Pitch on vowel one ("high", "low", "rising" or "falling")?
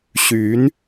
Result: rising